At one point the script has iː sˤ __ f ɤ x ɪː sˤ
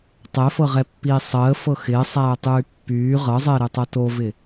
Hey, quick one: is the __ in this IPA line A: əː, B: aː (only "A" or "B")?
A